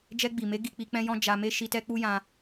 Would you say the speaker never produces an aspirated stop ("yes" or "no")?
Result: yes